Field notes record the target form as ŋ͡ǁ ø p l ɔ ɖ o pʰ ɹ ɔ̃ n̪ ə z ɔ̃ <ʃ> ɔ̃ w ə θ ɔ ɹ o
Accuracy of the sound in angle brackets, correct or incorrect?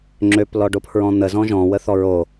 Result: incorrect